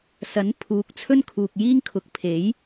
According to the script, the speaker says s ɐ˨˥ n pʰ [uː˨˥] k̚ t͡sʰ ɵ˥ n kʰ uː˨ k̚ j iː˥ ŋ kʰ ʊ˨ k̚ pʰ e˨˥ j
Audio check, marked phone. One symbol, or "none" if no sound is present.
uː˨˥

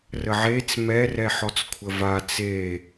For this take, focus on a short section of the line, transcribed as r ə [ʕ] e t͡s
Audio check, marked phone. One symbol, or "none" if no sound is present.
ʕ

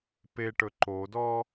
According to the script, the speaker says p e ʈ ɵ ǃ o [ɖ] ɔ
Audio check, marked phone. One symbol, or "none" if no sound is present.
d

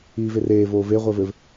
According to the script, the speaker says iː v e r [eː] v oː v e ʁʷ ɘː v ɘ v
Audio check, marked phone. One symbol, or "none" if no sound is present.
eː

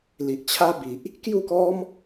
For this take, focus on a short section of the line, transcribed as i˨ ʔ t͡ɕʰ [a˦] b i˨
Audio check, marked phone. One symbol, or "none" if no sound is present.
a˦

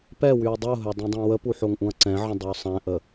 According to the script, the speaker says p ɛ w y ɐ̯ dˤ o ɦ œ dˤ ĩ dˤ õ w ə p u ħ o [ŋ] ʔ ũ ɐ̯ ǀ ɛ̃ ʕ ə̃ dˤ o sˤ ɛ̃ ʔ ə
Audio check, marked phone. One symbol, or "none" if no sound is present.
ŋ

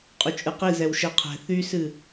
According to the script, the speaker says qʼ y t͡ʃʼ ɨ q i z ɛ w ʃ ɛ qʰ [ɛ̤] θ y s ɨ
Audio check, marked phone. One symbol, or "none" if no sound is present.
ɛ̤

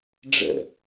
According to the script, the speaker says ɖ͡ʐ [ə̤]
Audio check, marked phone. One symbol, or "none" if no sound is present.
ə̰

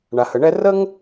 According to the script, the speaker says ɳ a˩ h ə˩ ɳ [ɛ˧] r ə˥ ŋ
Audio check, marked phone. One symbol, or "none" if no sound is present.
ɛ˧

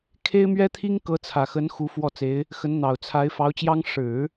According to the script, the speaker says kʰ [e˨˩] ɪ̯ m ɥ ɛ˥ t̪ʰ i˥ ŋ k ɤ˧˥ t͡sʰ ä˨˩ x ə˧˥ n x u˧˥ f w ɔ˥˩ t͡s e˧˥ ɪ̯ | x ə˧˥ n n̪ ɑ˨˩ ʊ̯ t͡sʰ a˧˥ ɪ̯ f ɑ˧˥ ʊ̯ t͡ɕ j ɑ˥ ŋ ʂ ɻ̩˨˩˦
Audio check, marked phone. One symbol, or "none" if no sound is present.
e˥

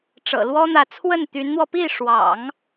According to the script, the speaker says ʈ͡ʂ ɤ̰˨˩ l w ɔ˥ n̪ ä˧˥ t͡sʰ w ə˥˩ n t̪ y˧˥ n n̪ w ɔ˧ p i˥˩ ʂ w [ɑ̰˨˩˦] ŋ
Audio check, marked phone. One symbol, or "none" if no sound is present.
ɑ̰˨˩˦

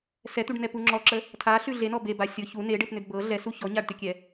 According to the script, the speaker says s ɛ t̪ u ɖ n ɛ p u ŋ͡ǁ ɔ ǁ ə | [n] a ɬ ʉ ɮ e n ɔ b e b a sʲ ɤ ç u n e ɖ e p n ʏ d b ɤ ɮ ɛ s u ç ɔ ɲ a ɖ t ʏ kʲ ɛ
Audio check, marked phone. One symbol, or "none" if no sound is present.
tʰ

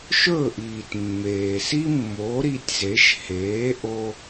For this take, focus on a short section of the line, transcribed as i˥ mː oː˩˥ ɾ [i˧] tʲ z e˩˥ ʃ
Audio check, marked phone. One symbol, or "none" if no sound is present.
i˧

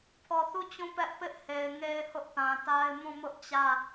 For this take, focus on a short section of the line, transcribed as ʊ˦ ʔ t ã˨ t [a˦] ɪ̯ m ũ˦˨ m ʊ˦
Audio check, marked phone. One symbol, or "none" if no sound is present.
a˦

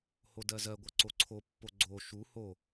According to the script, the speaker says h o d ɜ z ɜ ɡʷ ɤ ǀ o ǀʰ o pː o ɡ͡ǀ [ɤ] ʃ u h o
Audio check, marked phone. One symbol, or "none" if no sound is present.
o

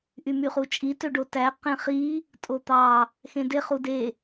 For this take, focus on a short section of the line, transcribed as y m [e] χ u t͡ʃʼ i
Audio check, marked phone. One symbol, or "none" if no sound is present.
y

